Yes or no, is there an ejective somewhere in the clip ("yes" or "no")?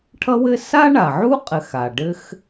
yes